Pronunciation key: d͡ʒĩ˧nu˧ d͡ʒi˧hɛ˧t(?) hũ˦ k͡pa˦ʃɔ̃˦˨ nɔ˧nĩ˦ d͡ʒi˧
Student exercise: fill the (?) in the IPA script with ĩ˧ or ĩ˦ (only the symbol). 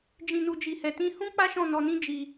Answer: ĩ˦